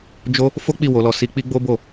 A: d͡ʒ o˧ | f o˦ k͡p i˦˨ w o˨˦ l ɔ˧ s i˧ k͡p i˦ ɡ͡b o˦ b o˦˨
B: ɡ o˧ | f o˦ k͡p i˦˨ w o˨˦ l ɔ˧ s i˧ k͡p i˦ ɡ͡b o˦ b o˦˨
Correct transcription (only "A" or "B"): A